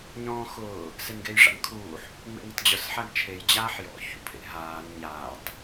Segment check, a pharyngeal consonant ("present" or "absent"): present